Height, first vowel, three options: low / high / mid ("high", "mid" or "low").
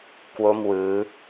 mid